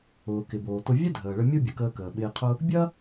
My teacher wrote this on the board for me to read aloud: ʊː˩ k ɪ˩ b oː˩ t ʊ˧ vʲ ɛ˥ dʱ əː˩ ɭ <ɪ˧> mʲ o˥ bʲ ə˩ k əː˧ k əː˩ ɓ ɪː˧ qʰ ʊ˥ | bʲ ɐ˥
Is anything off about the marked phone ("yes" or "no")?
yes